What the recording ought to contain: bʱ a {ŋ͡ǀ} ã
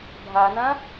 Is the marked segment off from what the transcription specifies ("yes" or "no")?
yes